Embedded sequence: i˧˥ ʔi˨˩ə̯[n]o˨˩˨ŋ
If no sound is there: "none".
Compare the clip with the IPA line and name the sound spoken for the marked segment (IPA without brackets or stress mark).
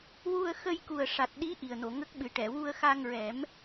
n